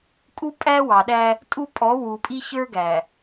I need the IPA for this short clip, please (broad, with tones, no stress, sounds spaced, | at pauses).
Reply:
kʼ u˦ pʼ æ˦ w ɑ˨ ɗ æ˦ | tʼ u˦ pʼ ɔ˨˦ w u˨ pʼ i˦ ç ə˞˦ ɡ æ˨